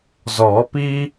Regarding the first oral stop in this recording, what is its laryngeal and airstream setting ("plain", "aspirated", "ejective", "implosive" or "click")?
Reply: plain